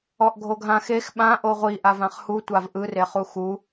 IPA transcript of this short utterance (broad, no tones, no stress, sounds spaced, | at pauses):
ɔ ʔ ɡʱ o ɡʱ ã x e x ɓ ã ʔ o ʁʷ i ʔ a v ã χ h u tʷ a v ʔ ɯ r e χ u x u